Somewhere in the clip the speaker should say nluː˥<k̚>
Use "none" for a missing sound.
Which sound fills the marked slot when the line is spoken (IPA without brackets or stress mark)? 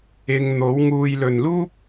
p̚